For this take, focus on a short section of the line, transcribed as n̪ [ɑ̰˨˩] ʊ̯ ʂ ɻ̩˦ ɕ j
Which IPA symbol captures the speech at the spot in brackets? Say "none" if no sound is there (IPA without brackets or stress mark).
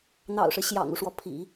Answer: ɑ̰˨˩